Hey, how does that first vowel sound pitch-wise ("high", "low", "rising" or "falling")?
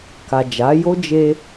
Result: low